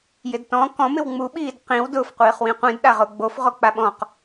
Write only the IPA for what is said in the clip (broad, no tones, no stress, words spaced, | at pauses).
jɪdtɔ̃ kɔ̃ mɪwŋ͡mu ɓiːdqĩw dʊf qʷiːχwĩqʷĩd ɗaʁʊːɡ͡bof ʁok͡paɓɔ̃q